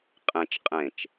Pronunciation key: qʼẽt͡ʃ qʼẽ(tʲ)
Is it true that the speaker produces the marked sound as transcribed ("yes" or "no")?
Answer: no